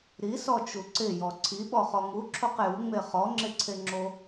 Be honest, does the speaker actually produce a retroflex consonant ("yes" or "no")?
no